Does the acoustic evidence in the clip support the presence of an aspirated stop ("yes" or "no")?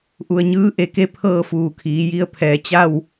yes